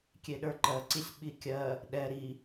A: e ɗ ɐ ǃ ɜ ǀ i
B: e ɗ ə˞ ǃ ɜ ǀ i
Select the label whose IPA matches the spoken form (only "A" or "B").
B